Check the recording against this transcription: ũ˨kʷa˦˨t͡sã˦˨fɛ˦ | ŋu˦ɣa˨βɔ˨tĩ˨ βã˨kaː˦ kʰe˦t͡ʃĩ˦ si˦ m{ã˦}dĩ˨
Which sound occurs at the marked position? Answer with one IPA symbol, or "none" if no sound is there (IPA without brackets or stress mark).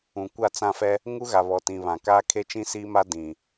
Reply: a˦